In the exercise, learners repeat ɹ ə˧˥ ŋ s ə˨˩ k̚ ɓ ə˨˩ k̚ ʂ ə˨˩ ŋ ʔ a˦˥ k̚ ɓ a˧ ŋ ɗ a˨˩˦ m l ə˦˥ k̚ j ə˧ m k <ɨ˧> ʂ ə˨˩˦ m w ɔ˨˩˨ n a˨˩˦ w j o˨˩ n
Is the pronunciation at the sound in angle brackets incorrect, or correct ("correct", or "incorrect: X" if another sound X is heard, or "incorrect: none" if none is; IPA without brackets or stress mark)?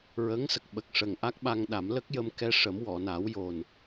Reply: incorrect: ɛ˧